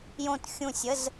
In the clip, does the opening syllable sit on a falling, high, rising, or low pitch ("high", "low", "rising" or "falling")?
falling